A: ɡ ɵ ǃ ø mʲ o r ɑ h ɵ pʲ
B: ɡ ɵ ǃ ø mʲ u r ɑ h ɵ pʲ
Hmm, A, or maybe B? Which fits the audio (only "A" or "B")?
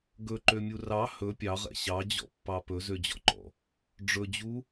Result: B